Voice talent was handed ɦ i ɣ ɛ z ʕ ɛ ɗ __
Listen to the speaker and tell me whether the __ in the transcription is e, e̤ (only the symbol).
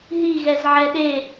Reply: e